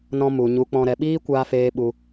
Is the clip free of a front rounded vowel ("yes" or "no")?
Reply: yes